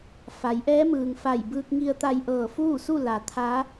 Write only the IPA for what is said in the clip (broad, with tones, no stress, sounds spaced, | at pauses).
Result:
f a˩˧ j ʔ ɛː˧˥ m ɯː˩ ŋ f a˧˩ j b ɯː˧ k̚ ŋ i˧ ə̯ t̪ a˧ j ʔ ɤː˧˩ f uː˥˨ s u˥˨ l a˩ t̪ʰ a˧˥